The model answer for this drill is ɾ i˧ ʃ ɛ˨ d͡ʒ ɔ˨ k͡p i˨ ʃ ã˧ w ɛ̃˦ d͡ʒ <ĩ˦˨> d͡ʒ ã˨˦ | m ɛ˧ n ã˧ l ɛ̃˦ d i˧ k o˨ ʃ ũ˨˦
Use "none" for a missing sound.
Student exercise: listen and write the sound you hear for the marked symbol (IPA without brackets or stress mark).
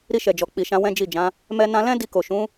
i˦˨